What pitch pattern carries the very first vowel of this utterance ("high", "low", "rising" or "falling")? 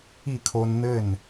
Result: falling